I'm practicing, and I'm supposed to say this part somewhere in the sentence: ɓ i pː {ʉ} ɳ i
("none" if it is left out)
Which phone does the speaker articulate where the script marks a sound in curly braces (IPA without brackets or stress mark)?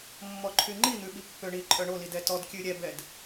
ø